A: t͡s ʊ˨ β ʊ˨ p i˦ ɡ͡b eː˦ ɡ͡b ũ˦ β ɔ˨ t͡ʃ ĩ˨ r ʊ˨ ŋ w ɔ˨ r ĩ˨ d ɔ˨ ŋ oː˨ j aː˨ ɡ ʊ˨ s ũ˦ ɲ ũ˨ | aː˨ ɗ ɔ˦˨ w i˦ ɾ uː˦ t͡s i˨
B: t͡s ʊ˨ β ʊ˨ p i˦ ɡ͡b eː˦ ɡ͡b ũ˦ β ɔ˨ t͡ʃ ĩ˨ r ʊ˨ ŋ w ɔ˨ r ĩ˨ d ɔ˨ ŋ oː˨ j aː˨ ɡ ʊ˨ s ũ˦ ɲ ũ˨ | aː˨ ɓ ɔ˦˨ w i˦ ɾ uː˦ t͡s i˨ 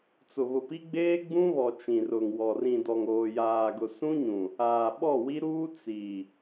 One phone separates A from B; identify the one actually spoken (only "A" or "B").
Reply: B